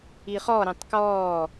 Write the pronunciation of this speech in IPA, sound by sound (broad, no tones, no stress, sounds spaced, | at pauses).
i χ ɔ ɾ ẽ tˤ k ɔː